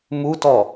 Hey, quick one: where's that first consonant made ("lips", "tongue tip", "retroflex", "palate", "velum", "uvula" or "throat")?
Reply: lips